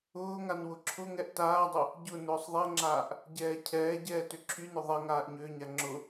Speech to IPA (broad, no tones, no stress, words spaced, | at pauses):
ʊːŋan wʊǁʰʊŋɛʔ taːdˤʊ | ɟʊ nʊːsˤðˤɛŋ͡ǁaːʔ | ɟɛːcʰɛːɟɛː tʏǁʰynʊ ðˤɛŋaːʔ ɲʏːɲa ŋ͡ǁʊ